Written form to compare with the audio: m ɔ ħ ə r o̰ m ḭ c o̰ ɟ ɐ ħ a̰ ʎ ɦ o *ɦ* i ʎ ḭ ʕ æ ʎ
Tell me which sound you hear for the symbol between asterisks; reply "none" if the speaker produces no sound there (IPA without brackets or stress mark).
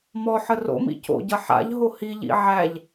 h